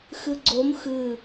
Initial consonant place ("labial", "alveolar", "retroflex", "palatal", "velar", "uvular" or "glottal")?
velar